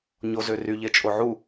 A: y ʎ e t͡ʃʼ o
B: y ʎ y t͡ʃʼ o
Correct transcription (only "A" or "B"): A